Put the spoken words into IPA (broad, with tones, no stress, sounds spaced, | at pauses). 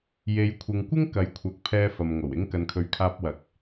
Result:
j e˨˧ j kʷʰ ɪ˨ ŋ kʷ ɪ˥ ŋ k ɐ˨˥ j kʷʰ ɐ˨˥ k̚ pʰ ɛː˧ f ɐ˨ m ŋ o˨˩ w ɪ˥ ŋ k ɐ˨ n kʰ ɵ˨˧ ɥ kʰ aː˧ p̚ w ɐ˨˥ k̚